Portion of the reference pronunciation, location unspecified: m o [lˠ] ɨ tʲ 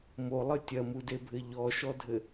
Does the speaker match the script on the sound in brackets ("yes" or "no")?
yes